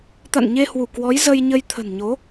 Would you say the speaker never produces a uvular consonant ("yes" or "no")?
yes